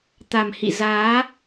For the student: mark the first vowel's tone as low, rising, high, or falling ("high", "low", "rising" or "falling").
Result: low